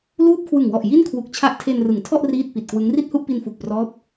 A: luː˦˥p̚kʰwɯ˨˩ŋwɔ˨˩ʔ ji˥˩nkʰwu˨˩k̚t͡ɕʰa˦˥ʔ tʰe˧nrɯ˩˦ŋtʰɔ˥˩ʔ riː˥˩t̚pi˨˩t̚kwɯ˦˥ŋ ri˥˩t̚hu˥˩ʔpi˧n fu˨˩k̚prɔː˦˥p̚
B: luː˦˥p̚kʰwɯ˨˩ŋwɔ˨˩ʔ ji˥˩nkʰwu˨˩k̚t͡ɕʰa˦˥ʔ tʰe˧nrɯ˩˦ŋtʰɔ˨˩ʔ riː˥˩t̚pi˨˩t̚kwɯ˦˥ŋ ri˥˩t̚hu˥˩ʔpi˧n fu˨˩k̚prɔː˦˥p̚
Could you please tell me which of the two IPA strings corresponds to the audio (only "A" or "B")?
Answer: A